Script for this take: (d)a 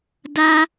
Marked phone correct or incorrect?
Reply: correct